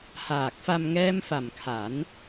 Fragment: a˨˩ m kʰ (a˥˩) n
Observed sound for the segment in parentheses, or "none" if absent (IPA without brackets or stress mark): a˩˦